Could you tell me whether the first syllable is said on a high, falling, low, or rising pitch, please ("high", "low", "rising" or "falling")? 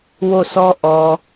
falling